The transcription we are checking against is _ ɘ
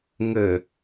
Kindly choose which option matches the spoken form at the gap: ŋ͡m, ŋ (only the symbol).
ŋ